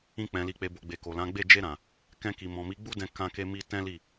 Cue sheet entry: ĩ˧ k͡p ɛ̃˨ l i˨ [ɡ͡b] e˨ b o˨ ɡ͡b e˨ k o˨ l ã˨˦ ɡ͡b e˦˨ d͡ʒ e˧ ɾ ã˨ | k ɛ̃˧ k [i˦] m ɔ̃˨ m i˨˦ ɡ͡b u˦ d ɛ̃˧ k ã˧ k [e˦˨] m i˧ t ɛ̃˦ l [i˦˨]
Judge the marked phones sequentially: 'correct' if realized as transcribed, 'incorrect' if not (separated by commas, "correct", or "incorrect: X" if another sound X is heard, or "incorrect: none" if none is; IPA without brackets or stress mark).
incorrect: k͡p, incorrect: i˨, incorrect: e˧, correct